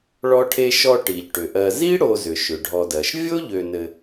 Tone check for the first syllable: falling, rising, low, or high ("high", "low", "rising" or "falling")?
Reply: high